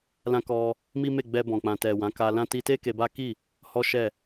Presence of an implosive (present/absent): absent